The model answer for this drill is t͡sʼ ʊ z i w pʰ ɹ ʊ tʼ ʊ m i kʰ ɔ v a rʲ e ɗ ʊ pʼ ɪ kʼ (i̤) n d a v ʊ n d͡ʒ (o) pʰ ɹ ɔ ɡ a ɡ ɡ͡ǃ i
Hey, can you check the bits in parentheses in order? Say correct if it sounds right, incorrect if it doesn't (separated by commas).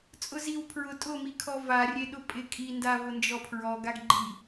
incorrect, incorrect